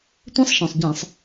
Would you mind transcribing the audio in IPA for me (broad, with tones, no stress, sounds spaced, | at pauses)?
tʷ ẽ˦˥ sˤ ʃ ɔ̃˩ sˤ ɟ ɛ̃˧˩˧ sˤ